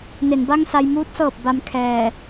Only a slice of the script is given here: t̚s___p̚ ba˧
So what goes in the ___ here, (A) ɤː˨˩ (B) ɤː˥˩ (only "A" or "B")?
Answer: A